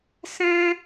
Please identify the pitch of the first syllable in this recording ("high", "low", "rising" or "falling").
high